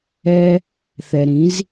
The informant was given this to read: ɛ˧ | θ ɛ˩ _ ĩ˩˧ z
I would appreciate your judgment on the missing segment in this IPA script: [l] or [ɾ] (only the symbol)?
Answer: ɾ